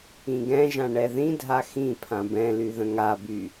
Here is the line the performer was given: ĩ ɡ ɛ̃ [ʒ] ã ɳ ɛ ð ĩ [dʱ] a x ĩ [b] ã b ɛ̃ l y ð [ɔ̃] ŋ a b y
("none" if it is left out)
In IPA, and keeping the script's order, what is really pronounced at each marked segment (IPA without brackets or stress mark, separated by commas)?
ʒ, dʱ, pʰ, ə̃